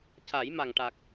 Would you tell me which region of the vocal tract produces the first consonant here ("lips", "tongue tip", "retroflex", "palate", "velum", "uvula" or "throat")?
palate